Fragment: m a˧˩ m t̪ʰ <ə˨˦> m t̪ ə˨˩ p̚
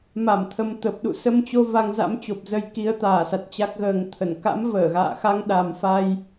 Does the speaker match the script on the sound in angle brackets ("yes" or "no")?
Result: yes